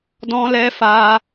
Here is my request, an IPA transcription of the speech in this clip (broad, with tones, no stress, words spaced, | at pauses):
dɔ̃˧lɛ˧fa˧